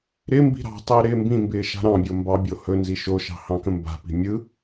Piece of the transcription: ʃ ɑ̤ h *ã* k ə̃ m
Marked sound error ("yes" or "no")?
yes